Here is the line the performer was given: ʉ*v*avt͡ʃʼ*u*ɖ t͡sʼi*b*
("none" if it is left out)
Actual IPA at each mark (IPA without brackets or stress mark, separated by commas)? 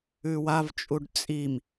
w, u, m